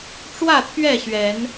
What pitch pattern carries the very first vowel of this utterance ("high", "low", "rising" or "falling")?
falling